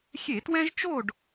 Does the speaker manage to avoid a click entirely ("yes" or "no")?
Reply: yes